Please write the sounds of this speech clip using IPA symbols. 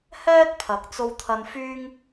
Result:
h ɛː˥ t̚ pʰ ɐ˨˥ k̚ t͡s o˧ w t̪ʰ ɐ˧ n f yː˥ ŋ

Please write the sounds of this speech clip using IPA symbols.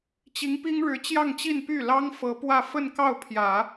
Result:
t͡ɕ i˧˥ ŋ p i˥ ŋ ɻ ɻ̩˧˥ t͡ɕ j ɑ˥˧ ŋ t͡ɕ i˥˧ n p y˥˩ l ɑ˥ ŋ f ɤ˧˥ p w ä˥˧ f ə˥˧ n k ɑ˥˩ ʊ̯ pʰ j ä˨˩˦

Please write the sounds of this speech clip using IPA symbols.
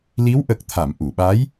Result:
l i˧˥ w ʔ ə˨˩ k̚ t̪ʰ a˨˩˨ m ʔ u˨˩˨ ɓ aː˧˥ j

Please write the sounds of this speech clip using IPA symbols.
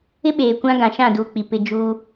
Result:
ɪ˦ ɓ eː˨ kʷ ã˦ ɡ ã˨ ʃ ã˦˨ d uː˨ k͡p i˨ p ɪ˨ d͡ʒ u˦

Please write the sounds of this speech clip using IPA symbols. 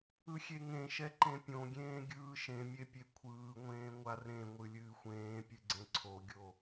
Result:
ɯ xʲ e ŋ ẽ ʃ ɛ ǃ ẽ pʲ õ ɡʲ ẽː ɡʲ ɯː ʃ ẽ mʲ e pʲ e kʷʰ ɯː ŋʷ ẽː ŋʷ a r ẽ ŋʷ ɨ lʲ ɨː xʷ ẽː pʲ ɨ ɡ͡ǀ ẽ ǀʰ o ɡʲ o

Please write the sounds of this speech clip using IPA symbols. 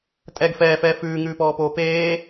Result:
tʼ ɛ ɡ f ɛː f ɛː f ʉː ŋ ʉː p ɔː p oː p eː

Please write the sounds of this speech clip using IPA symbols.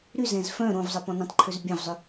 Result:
ɾ y z ɛ̃ z f œ̃ ɾ õ v zˤ ə p ɔ̃ n ɛ̃ tˤ ǃʰ ø z bʲ ɛ̃ v zˤ ʏ

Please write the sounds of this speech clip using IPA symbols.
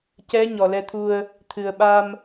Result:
c ɛ˧˥ ɲ ɔ˨˩ l ɛ˧ t̪ʰ u˧ ə̯ | t̪ʰ ɨ˨˩ ə̯ ɓ a˧ m

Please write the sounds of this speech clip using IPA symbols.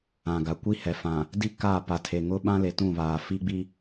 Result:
ã˨ ɡ a˨ kʷ i˦ h ɛ˨ f ã˨ | d i˦ k a˦˨ p a˨ tʰ e˨ ŋ ʊ˦ ɓ ã˦ l e˨ t ũ˦˨ β aː˨ f i˦ ɡ͡b i˦

